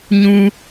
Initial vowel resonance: nasal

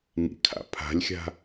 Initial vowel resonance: oral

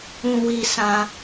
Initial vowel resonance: nasal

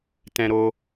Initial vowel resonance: nasal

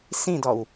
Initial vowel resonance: nasal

